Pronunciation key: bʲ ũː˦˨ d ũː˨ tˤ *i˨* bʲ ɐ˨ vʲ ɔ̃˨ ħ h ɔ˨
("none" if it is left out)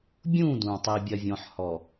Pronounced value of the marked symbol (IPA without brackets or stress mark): i˨